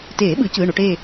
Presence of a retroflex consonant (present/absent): present